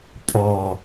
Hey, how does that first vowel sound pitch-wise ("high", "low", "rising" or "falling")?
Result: low